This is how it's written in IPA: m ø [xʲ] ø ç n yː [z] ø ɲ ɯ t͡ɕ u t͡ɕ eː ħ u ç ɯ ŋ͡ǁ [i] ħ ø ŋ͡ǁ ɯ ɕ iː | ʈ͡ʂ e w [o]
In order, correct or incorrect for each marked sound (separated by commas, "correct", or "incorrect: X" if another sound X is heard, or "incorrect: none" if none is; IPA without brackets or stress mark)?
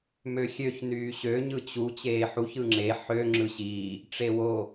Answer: correct, incorrect: ɕ, incorrect: e, correct